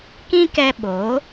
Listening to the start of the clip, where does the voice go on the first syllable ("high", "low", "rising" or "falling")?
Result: high